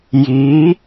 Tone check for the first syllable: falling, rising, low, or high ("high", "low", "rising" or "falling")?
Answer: rising